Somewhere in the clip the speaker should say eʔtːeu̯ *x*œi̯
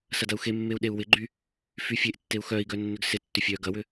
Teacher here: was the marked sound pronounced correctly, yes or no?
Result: yes